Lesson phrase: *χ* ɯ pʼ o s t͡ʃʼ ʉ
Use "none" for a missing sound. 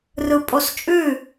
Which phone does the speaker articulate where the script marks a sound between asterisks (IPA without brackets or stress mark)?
r